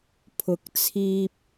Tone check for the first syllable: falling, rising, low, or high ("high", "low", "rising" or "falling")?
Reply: rising